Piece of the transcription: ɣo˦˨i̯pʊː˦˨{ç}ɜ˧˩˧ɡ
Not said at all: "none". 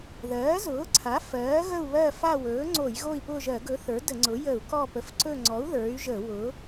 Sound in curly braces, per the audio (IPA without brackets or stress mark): ʒ